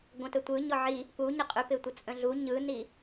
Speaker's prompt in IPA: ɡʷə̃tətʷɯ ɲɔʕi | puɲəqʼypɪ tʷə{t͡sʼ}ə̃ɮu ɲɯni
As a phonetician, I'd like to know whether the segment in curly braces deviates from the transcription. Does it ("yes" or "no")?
no